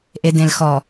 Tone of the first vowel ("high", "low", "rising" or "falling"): low